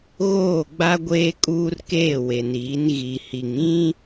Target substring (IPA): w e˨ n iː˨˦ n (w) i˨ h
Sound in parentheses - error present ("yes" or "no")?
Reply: yes